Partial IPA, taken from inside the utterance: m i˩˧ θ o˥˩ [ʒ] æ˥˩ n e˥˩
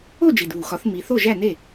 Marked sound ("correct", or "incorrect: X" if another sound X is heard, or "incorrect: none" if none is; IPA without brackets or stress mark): correct